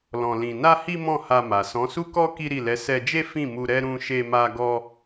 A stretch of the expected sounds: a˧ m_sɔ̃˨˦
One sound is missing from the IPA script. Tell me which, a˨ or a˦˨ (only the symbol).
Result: a˨